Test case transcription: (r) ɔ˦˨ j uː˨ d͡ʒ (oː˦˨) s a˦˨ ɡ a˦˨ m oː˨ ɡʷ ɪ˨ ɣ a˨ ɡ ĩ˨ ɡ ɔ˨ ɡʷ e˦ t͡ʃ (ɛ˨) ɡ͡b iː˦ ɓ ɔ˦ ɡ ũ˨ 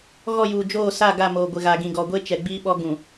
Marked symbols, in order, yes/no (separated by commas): no, yes, yes